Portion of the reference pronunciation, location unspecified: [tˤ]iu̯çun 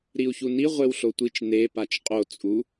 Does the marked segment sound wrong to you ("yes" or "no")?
yes